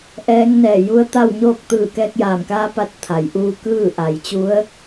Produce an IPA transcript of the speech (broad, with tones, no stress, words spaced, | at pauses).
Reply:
ʔɛː˧˥ŋnɛː˧˩ ju˧˥ə̯t̪a˥˨wɲoː˥˨k̚ t̪ɯː˧˩kɛː˧k̚jaː˧˩mkaː˧˥ pa˧t̚t̪ʰa˩˧j ʔuː˧kɯː˥˨ʔa˩˧jt͡ɕu˧˥ə̯